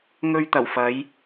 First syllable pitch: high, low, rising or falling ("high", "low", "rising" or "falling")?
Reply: high